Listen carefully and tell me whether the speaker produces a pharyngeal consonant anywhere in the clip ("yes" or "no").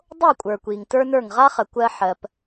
yes